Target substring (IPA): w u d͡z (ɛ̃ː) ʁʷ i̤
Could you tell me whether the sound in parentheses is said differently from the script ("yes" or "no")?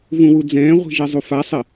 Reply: no